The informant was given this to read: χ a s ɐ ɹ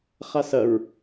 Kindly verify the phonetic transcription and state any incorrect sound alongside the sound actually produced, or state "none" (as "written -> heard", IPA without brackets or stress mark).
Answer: none